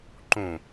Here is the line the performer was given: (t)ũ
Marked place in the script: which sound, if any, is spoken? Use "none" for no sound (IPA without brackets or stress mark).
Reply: ǃ